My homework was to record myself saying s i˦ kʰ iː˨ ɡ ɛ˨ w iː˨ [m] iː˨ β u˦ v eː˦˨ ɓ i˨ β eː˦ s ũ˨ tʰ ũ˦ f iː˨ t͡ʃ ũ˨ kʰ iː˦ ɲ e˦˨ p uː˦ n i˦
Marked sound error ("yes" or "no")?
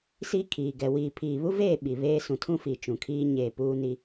yes